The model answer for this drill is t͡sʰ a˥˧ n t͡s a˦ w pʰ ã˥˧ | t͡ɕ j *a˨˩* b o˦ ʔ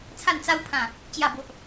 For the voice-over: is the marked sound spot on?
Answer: no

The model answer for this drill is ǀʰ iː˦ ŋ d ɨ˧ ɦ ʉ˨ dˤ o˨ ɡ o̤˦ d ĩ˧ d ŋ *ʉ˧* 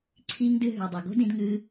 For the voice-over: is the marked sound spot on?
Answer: no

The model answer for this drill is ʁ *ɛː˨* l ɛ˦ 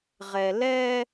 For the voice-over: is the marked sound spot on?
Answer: no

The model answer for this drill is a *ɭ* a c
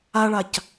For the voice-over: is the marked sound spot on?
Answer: yes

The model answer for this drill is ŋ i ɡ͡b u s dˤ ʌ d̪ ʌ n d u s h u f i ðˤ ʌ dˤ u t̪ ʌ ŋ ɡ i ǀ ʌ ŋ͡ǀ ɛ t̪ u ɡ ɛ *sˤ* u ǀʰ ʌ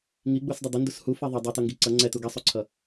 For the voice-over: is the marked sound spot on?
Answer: yes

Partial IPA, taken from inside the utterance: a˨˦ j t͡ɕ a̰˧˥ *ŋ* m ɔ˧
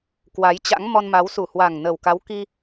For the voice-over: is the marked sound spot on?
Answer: yes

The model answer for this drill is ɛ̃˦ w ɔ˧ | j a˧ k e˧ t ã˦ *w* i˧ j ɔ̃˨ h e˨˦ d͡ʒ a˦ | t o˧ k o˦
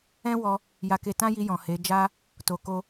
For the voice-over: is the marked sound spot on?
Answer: no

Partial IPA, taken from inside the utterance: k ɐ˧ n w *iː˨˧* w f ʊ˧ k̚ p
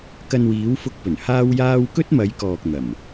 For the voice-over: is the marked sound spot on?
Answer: yes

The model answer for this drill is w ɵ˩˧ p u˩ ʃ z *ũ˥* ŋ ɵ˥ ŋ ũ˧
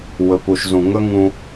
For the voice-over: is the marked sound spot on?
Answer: no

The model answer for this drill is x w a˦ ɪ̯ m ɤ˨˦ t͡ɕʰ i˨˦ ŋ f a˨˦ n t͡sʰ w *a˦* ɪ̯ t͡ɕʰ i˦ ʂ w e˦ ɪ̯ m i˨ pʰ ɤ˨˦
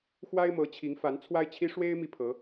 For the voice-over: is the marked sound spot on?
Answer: yes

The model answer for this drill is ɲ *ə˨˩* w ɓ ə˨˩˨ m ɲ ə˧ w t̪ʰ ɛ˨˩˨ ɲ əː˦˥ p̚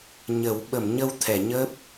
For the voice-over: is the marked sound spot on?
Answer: no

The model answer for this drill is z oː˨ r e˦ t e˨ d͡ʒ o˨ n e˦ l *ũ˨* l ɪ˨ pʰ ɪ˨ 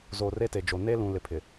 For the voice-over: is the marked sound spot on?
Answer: yes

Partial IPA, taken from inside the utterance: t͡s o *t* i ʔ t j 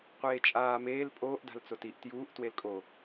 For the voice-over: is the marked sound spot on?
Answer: yes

